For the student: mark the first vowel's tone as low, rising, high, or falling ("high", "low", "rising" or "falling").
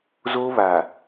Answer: high